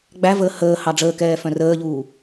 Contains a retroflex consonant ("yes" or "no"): yes